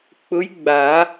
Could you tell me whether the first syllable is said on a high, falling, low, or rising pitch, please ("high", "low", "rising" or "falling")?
rising